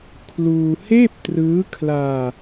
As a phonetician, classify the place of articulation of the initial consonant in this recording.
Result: velar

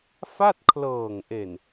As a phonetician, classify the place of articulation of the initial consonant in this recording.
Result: labial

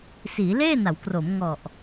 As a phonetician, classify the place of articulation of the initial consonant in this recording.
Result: alveolar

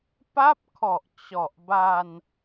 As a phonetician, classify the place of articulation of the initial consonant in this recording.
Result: labial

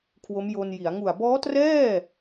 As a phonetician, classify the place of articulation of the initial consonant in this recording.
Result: velar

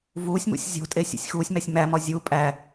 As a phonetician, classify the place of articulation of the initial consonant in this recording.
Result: labial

